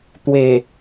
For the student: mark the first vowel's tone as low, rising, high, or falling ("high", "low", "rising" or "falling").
low